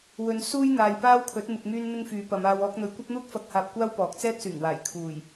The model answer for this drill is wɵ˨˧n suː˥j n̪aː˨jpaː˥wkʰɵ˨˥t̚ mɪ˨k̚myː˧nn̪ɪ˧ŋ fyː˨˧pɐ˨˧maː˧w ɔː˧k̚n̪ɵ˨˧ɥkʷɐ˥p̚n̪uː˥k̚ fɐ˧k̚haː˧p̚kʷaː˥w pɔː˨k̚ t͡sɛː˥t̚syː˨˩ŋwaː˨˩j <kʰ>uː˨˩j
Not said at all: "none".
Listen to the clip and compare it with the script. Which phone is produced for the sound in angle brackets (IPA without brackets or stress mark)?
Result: kʰ